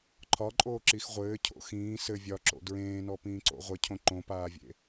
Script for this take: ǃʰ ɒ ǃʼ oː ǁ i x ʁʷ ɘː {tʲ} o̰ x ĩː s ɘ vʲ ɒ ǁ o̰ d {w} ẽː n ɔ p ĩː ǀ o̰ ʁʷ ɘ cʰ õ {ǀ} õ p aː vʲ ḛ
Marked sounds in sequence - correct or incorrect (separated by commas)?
incorrect, incorrect, incorrect